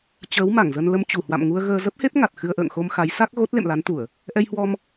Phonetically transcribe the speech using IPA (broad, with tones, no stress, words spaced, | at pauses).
t͡ɕəː˨˦w ma˧˩ŋzə˧n lə˧mt͡ɕu˧˩hwa̰˧˨m ŋu˧ə̯ɣəː˧ zə˦˥p̚he˦˥p̚ ŋa˨˩t̚ xɨ˧ə̯ʔə̰ː˧˨ŋ xo˧m xa˨˦jsa˦˥k̚ɣo˦˥t̚ lḛ˧˨mla˨˦nt̪u˧˩˨ə̯ | ʔɛ˧jhwɔ˧m